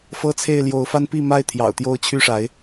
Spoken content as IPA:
f ɤ˦ t͡sʰ e˥˨ ɪ̯ l j o˨˦ ʊ̯ f a˦ n p i˥˨ m a˥˨ ɪ̯ t̪ʰ j ɑ̰˨˩ ʊ̯ t̪ j o˦ ʊ̯ t͡ɕʰ y˥˨ ʂ a˨˦ ɪ̯

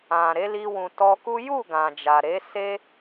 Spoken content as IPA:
ã˨ ɾ e˨˦ l i˧ w ũ˨ t ɔ˧ k u˦ j u˦˨ ɡ ã˨ d͡ʒ a˨ ɾ e˨˦ s e˦

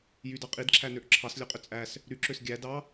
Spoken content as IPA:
j y d ɑ qʼ i d ǁʰ æ n ø ʔ ǁʰ ɑ s lʲ ø qʼ ø t͡sʼ æ s | ɾ y ǁ ø s ɡʲ æ d ɑ

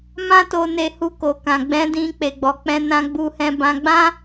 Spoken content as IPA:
m ã˦ t o˧ n e˧ h u˧ k o˨ k ã˨ ɡ͡b ɛ̃˨˦ d ĩ˧ k͡p e˨ ɡ͡b ɔ˨ k͡p ɛ̃˧ n ã˦ ɡ͡b u˧ h ɛ̃˧ b ã˧ ɡ͡b ã˦

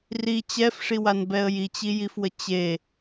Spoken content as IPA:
r i t͡ɕ ɛ f ʂ i w a n b ɛ ə̯ j i t͡ɕ i j i f w ə t͡ɕ e

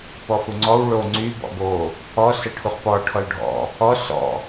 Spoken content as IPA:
p ɔ f u ŋ͡ǀ ɔ w ɭ o ŋ͡ǀ y b ɔ̰ b o | ɔ s ə ʈʰ u χ p ɔ ʈʰ ɔ l ɖʱ ɔ̰ | ɔ s ɔ̰

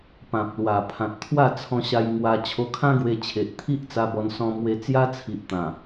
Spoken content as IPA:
p ã˨ p̚ l w a˨˩ pʰ ã˨ t̚ t̪ʰ w a˥˧ t͡sʰ ɔ̃˧ ɕ a˧ j ŋ w a˧ t͡ɕʰ o˧ kʰ ã˦ ɡ w e˧ t͡ɕʰ e˨ ʔ t̪ʰ i˦ ʔ t͡s a˧ b ɔ˧ n s ɔ̃˧ m w e˧ t͡s j a˦ t͡sʰ i˨ ʔ t̪ ã˨˩

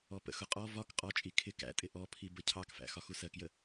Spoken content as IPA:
ɔ p ə̰ x ʊ qʼ ɔ v ɒ k qʼ ɔ t͡ʃʼ i kʰ ɪ k æ̰ tʼ ɪ ʔ ɔ pʰ i b ə cʰ ɑ k f æ̰ x ɒ x u s ɜ k j ə

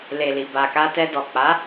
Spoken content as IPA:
l e˨ l i˨ b a˨ k a˧ t ɛ˧ d ɔ˨ k͡p a˨˦

